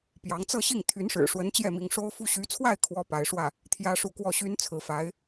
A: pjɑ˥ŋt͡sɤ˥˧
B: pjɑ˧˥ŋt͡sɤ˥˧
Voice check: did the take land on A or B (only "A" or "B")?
B